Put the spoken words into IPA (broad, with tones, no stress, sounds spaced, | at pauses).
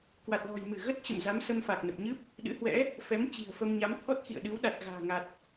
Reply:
k w a˨˩ t̚ l ɔ̤˨˩ j m ɨ˧˩ ɣ ə˦˥ t̚ t͡ɕ ə̰˧˨ m z a˨˦ m s ə˧ m f a˨˩ k̚ n ə˨˩ p̚ ɲ ɨ˦˥ p̚ | ɗ ɨ̰˧˥ h w ɛ̰˧˥ | f ɛ˨˦ m t͡ɕ i̤˨˩ ə̯ f ə˧ m ɲ a˨˦ m t̪ʰ ɔ˦˥ t̚ x ḭ˧˨ ə̯ ɗ ɨ˨˦ w ɗ a˨˩ t̚ ɣ a̤ː˨˩ ŋ a˨˩ t̚